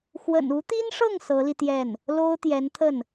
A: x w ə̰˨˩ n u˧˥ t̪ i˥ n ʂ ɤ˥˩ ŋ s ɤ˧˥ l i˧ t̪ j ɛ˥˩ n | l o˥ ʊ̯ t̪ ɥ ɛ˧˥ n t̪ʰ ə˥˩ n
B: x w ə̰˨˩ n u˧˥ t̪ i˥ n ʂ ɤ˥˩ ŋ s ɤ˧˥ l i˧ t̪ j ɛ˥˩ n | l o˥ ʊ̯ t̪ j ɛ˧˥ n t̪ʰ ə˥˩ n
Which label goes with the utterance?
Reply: B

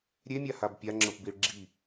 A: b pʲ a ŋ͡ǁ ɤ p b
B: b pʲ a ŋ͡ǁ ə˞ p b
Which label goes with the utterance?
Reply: A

